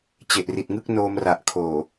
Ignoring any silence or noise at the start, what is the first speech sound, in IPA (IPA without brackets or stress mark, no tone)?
t͡ɕ